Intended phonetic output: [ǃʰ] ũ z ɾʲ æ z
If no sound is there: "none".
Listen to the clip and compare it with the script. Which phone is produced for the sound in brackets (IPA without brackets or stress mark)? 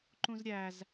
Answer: ǃ